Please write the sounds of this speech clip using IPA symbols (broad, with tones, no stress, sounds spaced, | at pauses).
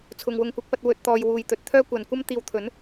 t͡sʰ ʊ˨ ŋ w ʊ˨˧ ŋ kʷ ɐ˨˥ k̚ p ɐ˧ t̚ w ɵ˨ t̚ t̪ ɔː˨ j w uː˨˧ j t̪ ɵ˨ t̚ t̪ʰ œː˥ kʷ ɐ˨ n kʷ ɐ˥ m t̪ iː˧ w t̪ʰ ɵ˨˥ n